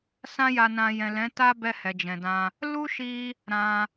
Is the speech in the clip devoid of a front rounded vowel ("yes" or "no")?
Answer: yes